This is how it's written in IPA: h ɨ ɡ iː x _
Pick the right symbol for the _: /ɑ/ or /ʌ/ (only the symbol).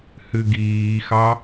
ɑ